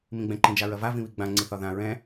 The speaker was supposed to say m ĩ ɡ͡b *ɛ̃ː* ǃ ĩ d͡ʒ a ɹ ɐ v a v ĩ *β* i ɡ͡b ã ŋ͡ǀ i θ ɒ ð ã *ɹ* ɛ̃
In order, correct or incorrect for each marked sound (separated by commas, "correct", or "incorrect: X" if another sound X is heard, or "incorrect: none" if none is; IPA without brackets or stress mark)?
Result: incorrect: ɛ̃, correct, correct